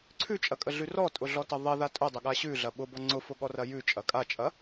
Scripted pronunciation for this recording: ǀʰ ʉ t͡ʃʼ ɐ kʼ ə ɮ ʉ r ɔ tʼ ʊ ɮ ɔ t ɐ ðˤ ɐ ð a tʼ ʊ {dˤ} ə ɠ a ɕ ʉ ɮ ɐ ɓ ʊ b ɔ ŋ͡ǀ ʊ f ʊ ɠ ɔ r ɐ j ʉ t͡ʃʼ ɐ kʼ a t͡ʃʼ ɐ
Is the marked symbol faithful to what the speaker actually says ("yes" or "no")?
yes